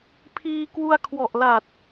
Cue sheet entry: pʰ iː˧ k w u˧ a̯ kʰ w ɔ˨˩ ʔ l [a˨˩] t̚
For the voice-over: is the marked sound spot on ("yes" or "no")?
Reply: yes